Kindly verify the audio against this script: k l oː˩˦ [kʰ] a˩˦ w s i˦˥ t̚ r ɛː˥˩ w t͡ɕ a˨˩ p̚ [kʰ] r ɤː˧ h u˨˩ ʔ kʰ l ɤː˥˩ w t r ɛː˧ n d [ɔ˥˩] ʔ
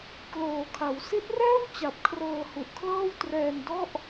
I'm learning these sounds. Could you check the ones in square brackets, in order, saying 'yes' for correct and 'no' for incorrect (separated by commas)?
yes, yes, yes